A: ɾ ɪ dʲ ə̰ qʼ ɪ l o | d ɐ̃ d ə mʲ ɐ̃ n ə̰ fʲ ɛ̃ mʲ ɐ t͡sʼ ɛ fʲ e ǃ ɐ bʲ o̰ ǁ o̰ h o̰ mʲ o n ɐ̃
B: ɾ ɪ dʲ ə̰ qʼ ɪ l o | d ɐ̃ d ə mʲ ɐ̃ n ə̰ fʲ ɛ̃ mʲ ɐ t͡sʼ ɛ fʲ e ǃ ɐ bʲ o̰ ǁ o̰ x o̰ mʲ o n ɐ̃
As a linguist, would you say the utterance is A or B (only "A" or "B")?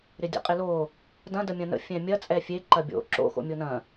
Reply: B